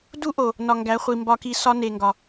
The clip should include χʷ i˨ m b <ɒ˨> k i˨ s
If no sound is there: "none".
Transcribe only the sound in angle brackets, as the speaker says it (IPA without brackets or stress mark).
ɒ˨